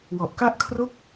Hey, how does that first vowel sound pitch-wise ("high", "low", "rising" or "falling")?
low